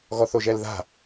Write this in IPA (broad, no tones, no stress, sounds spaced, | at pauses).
ɣ ɔ θ o ʒ ɛ l ð a̤